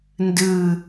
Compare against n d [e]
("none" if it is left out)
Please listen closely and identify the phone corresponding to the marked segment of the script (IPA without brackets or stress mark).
ɨ